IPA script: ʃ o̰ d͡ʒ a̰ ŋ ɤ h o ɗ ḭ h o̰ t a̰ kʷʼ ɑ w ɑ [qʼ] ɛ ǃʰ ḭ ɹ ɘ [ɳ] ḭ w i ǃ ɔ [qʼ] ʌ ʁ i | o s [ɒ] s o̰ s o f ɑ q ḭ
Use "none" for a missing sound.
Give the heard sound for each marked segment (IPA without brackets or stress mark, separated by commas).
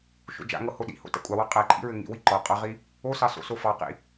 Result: qʼ, ŋ, qʼ, ɑ